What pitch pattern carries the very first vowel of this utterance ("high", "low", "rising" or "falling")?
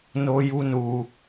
high